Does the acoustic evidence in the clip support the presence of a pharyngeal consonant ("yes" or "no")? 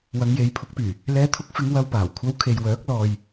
no